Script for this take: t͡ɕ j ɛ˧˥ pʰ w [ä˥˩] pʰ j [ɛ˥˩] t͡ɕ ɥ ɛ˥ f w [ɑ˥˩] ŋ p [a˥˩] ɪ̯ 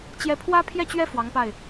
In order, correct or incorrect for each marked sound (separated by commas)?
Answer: incorrect, correct, incorrect, correct